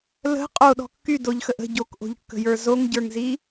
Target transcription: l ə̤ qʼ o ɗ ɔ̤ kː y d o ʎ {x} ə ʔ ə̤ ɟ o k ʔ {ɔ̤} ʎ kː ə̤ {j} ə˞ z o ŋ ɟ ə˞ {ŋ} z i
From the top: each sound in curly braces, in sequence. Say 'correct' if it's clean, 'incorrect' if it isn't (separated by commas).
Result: correct, incorrect, correct, correct